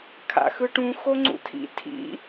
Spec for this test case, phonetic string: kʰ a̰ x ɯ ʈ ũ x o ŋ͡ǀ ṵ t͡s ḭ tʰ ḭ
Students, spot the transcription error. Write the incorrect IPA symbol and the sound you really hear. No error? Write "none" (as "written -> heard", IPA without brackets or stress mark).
t͡s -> tʰ